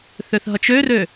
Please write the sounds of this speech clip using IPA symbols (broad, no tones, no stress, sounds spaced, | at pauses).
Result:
θ ø θ ɦ ʌ t͡ʃ ø r ø